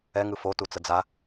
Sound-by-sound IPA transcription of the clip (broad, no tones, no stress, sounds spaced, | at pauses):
ɛ ŋ ɯ f o t u t͡s ə d͡z a